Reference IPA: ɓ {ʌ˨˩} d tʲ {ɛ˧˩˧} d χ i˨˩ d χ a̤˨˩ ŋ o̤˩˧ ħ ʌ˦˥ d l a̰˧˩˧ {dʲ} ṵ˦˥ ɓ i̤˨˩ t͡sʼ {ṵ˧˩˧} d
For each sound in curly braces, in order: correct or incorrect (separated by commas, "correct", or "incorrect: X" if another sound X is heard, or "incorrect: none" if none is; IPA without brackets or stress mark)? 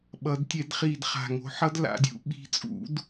incorrect: ʌ˩˧, correct, correct, correct